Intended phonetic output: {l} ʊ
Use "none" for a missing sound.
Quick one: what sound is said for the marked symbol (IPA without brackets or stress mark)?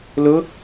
l